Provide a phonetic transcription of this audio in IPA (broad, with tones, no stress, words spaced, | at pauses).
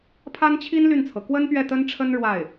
pʰa˥nt͡ɕʰi˥n ly˥˩nt͡sʰɤ˩ kwə˥npɥɛ˥˩ t̪ə˥nʈ͡ʂʰə˥n ɻwa˥˩ɪ̯